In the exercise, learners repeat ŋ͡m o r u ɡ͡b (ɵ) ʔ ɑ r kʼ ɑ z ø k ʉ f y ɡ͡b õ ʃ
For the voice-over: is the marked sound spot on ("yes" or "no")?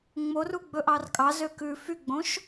yes